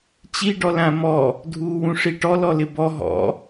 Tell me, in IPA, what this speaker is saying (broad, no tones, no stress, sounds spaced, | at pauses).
t͡ɕ i ɖ ɔ l ã m ɔ | dʱ uː w ũ ʂ i ʈ ɔ l ɔ l ɪ b ɔ ɦ ɔ̰